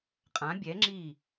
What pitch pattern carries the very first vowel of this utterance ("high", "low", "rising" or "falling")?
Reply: rising